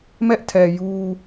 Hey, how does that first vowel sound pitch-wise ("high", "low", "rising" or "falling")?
high